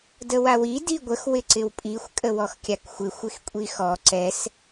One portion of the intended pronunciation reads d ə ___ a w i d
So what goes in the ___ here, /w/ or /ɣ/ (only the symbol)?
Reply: w